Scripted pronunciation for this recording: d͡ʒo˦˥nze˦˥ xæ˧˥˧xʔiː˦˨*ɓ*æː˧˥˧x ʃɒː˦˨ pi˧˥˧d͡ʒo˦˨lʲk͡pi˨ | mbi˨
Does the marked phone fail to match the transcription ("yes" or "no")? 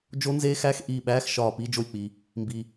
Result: no